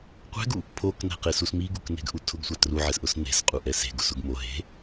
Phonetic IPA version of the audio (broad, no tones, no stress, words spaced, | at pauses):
qʷɛ̤ɡu | pʰoknɛ̤qesus miɡukne̤ɡʔu tʰʊɡsʷa truʕɛsʔʊs ne̤sqʼuʔɛ se̤ɡʊsʊɡ mo ɦe̤